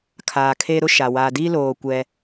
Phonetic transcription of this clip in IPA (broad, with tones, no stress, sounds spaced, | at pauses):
kʰ aː˨ kʰ e˦ ɾ ʊ˦ ʃ a˨ w a˨ d i˦ l oː˨ kʷ ɛ˦